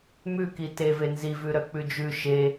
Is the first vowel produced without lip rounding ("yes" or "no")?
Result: no